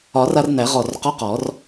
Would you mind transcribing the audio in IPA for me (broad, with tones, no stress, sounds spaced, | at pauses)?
ɒ˨˩˦ r a˧ r n æ˨˩˦ ʁ ɔ˧˩ r q ɔ˧˥˧ q ɔ˨˩˦ r